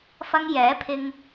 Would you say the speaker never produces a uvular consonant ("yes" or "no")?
yes